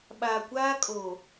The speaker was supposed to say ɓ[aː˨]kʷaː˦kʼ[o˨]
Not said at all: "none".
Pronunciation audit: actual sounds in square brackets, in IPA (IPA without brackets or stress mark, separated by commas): aː˨, oː˨